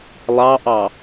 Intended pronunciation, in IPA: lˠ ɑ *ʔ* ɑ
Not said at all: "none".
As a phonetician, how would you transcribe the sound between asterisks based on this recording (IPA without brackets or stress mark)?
ʔ